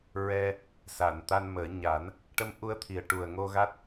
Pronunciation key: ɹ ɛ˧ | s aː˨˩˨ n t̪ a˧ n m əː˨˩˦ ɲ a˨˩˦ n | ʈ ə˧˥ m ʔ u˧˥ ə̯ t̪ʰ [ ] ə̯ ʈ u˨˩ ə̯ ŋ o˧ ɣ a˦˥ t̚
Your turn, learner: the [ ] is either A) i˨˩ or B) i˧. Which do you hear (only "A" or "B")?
A